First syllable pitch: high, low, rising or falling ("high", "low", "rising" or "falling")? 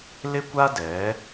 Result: high